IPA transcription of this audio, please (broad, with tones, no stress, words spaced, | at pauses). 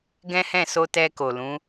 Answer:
ɡɛ̃˦hɛ̃˦˨ so˧ tɛ˧ko˨lũ˨˦